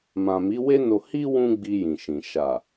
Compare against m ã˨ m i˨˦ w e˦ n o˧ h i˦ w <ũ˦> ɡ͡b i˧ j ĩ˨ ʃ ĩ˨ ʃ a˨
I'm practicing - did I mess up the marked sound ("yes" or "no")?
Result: no